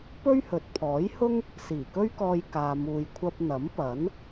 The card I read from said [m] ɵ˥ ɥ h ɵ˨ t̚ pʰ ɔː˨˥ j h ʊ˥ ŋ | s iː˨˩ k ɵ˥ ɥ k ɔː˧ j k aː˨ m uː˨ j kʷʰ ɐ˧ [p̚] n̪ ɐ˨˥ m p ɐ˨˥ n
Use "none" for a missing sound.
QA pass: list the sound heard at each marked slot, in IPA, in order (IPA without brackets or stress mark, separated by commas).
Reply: p, p̚